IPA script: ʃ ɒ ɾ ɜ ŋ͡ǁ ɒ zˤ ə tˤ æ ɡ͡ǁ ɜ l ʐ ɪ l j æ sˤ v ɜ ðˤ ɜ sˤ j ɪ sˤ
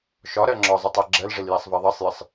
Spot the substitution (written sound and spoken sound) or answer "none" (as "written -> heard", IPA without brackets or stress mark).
none